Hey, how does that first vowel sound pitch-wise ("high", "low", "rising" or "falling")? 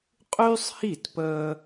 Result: high